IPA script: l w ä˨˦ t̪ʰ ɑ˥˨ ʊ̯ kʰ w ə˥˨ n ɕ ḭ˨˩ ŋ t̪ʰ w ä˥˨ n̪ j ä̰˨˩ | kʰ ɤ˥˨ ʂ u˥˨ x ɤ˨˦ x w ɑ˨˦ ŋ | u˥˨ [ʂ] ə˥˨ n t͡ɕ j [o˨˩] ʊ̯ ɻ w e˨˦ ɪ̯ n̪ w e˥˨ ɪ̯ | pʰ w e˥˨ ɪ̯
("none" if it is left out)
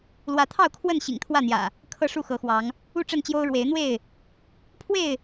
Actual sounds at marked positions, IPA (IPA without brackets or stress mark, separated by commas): ʈ͡ʂ, o˦